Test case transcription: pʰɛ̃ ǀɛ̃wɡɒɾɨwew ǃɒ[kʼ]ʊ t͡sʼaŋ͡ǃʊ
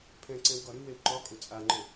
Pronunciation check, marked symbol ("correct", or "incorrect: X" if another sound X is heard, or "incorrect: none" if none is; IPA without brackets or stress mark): correct